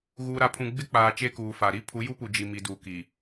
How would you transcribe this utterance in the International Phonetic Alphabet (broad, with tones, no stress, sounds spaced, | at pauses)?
ɣ uː˨ ɾ a˨ pʰ ũ˨ ɡ͡b ɪ˦ k͡p aː˨ t͡ʃ e˦ k uː˨ f a˨ ɾ i˦ pʰ u˨˦ j u˦ p u˨ d͡ʒ i˨ m i˨ d uː˨ k i˨